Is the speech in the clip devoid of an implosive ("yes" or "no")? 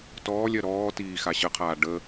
yes